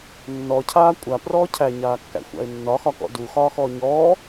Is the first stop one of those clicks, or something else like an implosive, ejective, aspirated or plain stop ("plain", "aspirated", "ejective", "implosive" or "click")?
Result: aspirated